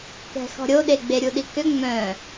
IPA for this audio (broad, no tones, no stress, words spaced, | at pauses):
kɛ̤xɔ̤ɾʲoɗe ɡ͡beɾʲuɗikø ŋ͡mœ̃